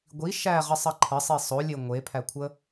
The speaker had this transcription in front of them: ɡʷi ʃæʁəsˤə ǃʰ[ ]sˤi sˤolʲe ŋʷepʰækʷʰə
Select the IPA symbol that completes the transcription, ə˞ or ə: ə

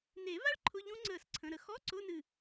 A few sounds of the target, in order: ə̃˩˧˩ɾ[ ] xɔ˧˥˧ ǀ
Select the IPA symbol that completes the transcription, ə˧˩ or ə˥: ə˥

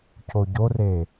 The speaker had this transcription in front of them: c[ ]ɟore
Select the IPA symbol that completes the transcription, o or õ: o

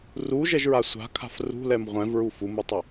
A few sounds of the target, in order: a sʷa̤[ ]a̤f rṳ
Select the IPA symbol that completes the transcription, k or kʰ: kʰ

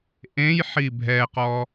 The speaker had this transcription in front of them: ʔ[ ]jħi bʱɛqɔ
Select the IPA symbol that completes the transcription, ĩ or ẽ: ẽ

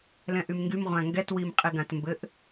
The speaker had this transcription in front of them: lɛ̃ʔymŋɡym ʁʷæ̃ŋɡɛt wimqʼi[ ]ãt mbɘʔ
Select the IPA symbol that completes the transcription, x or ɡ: ɡ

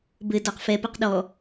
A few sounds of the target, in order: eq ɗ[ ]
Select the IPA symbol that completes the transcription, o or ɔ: ɔ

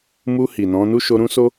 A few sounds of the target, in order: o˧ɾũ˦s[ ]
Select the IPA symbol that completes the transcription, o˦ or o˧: o˦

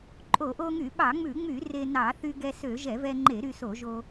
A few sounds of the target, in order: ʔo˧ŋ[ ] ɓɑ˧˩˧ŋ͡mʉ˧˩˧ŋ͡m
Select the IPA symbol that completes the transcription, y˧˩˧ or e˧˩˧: y˧˩˧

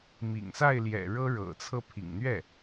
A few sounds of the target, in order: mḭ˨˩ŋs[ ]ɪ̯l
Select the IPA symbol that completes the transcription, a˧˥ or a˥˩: a˥˩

